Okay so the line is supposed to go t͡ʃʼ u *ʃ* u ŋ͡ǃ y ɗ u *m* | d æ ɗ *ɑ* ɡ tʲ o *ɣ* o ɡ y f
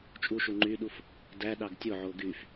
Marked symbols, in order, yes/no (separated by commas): yes, no, yes, no